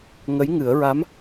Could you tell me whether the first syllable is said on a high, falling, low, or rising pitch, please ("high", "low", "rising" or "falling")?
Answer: rising